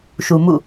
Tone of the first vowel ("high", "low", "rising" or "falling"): low